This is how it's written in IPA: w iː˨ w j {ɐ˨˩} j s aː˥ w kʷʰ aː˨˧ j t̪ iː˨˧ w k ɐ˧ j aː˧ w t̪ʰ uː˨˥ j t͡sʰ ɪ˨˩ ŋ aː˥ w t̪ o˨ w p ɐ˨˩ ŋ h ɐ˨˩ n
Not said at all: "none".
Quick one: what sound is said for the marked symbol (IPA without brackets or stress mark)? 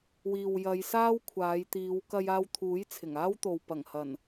ɐ˨˧